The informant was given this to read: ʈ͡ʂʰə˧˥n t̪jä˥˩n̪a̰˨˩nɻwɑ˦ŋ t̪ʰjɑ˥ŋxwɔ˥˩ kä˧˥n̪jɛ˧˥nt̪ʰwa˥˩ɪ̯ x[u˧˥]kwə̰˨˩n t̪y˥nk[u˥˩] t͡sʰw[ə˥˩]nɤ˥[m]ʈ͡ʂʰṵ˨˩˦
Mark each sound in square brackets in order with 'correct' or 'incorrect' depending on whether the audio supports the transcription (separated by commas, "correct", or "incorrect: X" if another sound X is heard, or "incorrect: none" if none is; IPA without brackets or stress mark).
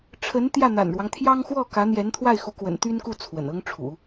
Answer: correct, correct, incorrect: ə̰˨˩, incorrect: ŋ